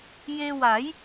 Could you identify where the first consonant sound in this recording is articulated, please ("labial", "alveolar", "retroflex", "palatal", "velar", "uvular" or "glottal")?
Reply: palatal